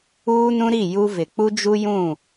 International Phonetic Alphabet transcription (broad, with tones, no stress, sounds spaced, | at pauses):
uː˦ n ũ˦ ɾ i˦˨ j u˦ v ɪ˨ k͡p u˦ d͡ʒ u˦ j ũ˦˨